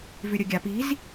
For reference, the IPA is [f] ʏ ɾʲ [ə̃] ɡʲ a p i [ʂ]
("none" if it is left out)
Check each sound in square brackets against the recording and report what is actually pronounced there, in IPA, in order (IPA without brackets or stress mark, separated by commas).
v, ə, z